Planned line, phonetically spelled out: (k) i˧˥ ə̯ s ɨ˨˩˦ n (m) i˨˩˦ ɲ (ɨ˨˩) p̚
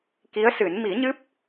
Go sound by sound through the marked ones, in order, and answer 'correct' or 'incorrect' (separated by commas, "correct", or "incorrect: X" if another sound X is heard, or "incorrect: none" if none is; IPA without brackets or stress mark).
correct, correct, incorrect: ɨ˦˥